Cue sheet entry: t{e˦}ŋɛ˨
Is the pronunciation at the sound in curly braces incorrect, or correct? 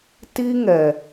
incorrect